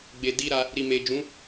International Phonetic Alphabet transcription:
ɡ͡be˨di˧ɾa˧ | ɾi˨me˨d͡ʒũ˨˦

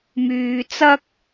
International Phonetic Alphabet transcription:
myː˧t͡sɐ˥k̚

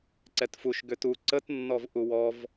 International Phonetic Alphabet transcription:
ǀɛtfuʃ ɡʏtu ǀətnːɔv ʔuwɔv

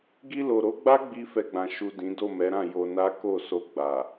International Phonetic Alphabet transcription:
ɡi˧lo˨ɾo˨˦ɡ͡ba˦ ɡ͡bi˦fɛ˧ɡ͡bã˨ ʃu˨ dĩ˨˦ do˦˨mɛ˨˦ɾã˦˨ jo˧na˦ ko˦˨so˧ ɡ͡ba˨

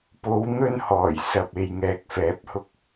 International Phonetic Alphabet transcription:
po˨˧wn̪ɵ˧n hɔː˨˩jsɐ˨p̚ e˨jŋɛː˨k̚ fɛː˨˥p̚hʊ˧k̚

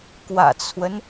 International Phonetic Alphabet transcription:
kwä̰˨˩t͡sʰwə˦n

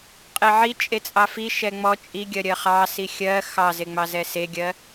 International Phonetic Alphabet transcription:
qʼeʕi t͡ʃʼet͡sʼɑfi ʃɛŋ͡mɔ t͡ʃʼiɡʲɜ ɾʲɜχɑ sixʲɜ xɑzeŋ͡mɑzɛ seɡʲɜ

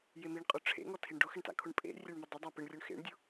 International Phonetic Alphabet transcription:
jemiɳqʼʊ ʈ͡ʂʰḛŋɔ tʰiɳɖʊxɪɳta̰ kʰʊɳpʼḛ rʲɛɳmʊdˤʊ dˤapɪɳrʲʊɳ xḛɳdʲʊ

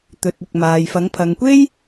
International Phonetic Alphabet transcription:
t̪ɵ˨t̚ ɪ˨k̚ maː˨jfɐ˨˥ŋ pʰɐ˨ŋkʷe˥j

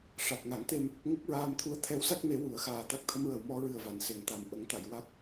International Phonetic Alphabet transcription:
ʂa˨˩k̚ŋa˨˩˦ŋt̪e˧m | ŋə˦˥k̚ɹaː˧mt̪ʰu˧˥ə̯ t̪ʰɛ˧˥wsa˦˥k̚me˨˩˦ wu˨˩˨ə̯xaː˨˩ t̪a˦˥k̚t̪ʰə˧mɹə˨˩wmɔ˧ ɹɨ˨˩ə̯va˨˩˨nse˨˩˨ŋt̪a˨˩˨m ʔə˨˩˦ŋt̪a˨˩˨jwa˦˥k̚

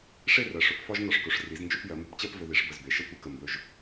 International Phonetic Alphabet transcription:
ʂe˥˧rɜ˩˧ʂɵ˩˧p fɒ˥ʒ nɒ˧ʂkɵ˩˧ʂri˩˧z nd͡ʒɵ˥˧pjɜ˩˧mbə˧pt͡ɕɜ˥˧p vɵ˧ði˩˧ʂbə˧˩z be˩˧ʃə˥˧ tʷi˥˧kə˧˩ mbɵ˧˩ʒ

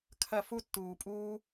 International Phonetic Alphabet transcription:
kʰɐ˦˨fu˦tːuː˨pʼuː˦

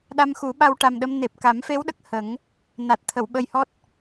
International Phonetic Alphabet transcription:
ɗa˧mxu˨˩˦ɓa˧w ʈa˨˩mɗə˧m ne˨˩p̚ ka˨˩˦mfe˧˥wɗə˨˩k̚ hə˨˩˦ŋ | na˨˩t̚t̪ʰə˨˩˨wɓə˧jhɔ˦˥t̚

